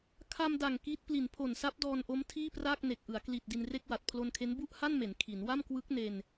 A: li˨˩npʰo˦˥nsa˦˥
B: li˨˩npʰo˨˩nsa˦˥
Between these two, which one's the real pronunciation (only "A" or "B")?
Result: B